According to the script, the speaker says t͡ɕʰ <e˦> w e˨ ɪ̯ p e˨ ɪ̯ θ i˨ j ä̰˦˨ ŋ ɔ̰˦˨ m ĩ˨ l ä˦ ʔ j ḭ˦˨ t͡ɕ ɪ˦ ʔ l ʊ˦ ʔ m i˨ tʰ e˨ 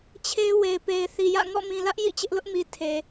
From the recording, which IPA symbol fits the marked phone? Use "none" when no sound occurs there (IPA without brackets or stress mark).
e˦